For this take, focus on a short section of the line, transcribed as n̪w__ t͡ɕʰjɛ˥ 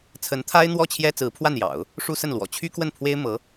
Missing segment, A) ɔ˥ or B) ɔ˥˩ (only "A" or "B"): B